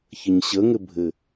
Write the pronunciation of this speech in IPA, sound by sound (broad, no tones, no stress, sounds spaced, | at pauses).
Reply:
ç ə ɲ ɕ ə ŋ ɘ bʱ ɘ